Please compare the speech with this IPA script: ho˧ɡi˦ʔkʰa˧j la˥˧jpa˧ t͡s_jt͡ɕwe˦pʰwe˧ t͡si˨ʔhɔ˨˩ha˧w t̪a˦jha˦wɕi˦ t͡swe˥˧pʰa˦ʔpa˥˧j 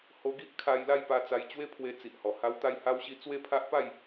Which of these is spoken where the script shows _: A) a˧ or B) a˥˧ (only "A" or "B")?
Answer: A